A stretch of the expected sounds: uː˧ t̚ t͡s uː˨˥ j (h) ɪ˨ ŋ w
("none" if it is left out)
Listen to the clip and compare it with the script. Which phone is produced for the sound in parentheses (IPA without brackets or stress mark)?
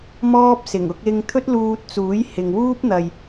h